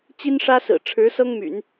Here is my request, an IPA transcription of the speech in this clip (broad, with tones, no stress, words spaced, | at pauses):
t͡ɕi˥nʂä˥sɹ̩˨˩ ʈ͡ʂʰɻ̩˧˥ sɤ˥ŋmy̰˨˩˦n